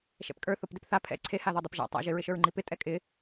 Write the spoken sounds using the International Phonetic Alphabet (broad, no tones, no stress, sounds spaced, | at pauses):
ʃ ɛ̰ p kʼ ə˞ θ o p d ɪ p θ a pʰ ɛ̰ ǀʰ e h a ð ɔ dˤ e p ʒ a̰ tˤ a̰ ʒ ɪ ɹ ɪ ʃ ə˞ ɹ ŋ͡ǃ i p ɪ tʼ ɛ kʼ ɪ